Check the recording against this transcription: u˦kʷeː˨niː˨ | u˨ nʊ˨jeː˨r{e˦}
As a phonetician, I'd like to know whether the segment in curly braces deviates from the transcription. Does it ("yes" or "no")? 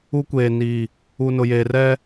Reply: yes